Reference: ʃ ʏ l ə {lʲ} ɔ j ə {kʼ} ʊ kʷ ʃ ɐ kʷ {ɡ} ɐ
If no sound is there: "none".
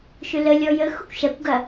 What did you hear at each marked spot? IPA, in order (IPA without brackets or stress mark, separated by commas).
lʲ, x, ɡ